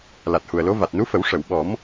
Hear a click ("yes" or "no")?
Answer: no